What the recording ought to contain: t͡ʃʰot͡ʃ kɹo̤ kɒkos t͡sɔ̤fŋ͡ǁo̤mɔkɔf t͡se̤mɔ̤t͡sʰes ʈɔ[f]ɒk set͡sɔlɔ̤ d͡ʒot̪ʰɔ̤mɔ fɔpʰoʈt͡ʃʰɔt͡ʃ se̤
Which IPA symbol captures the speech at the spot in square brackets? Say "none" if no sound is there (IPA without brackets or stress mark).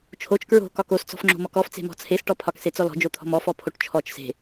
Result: pʰ